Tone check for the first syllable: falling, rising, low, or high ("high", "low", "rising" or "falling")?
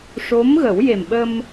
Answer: rising